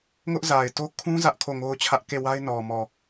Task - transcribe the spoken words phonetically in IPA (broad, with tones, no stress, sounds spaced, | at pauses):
ŋ ʊ˦ ʔ z a˨ ɪ̯ t o˦ kʰ ũ˦ z ä˦ ʔ kʰ o˦˨ ŋ o˦ ʊ̯ t͡ɕʰ ä˦ ʔ k e˦˨ w a˦ ɪ̯ n ɔ˨ m ɔ˨